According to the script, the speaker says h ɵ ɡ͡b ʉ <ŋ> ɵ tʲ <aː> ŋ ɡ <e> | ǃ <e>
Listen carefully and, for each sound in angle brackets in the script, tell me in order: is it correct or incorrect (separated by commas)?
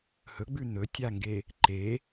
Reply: incorrect, incorrect, correct, correct